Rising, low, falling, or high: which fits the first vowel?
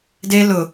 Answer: high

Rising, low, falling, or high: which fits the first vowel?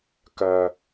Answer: low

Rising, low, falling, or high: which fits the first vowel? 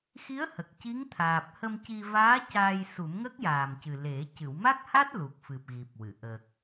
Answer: rising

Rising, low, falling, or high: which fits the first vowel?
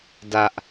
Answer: high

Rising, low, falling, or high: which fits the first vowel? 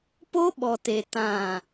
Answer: high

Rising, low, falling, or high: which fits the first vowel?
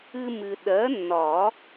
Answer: high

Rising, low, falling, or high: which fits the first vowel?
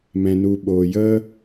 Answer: low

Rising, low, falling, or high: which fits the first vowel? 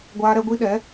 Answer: high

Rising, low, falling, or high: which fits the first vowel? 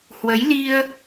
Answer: rising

